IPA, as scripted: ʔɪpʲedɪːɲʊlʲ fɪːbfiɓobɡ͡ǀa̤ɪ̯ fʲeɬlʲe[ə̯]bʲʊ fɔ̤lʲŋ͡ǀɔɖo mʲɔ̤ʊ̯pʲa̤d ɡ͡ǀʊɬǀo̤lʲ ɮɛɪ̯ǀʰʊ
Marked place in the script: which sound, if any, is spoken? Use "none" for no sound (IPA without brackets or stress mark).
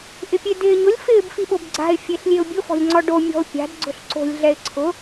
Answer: ʊ̯